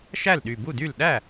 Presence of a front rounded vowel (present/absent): present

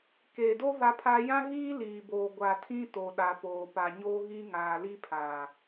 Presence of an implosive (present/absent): present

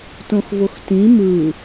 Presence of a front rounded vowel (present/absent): absent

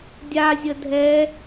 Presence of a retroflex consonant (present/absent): absent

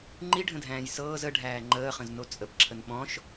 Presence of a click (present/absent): present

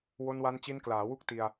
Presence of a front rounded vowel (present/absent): absent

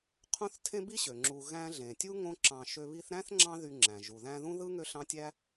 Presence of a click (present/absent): present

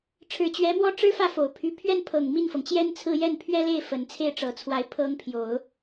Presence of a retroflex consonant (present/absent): present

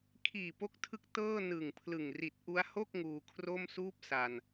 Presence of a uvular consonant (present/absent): absent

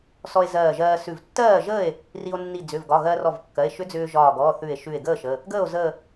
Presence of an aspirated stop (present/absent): absent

